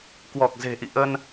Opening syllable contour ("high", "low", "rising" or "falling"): low